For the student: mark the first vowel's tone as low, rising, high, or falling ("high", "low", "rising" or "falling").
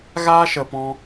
high